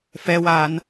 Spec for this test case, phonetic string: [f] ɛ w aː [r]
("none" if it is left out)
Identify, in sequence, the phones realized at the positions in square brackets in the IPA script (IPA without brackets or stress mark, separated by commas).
f, n